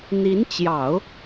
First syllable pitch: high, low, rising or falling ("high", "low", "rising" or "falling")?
rising